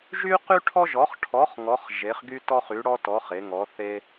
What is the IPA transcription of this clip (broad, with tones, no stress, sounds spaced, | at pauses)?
ʒ y˦ q y˦ ʈʰ ɔ˦ ʒ ɔ˨˦ χ ʈʰ ɔ˨˦ χ ŋ ɔ˨˦ χ ʒ e˨˦ χ ɡ y˦ t ɔ˦ χ y˨˦ ɽ ɔ˦ t ɔ˨˦ χ e˨˦ ŋ ɔ˨˦ θ e˦